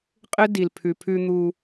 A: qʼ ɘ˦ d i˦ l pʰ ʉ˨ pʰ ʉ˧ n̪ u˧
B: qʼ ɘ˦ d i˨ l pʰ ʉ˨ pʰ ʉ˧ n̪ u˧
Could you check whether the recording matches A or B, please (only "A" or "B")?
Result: B